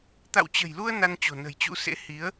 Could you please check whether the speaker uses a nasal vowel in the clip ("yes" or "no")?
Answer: no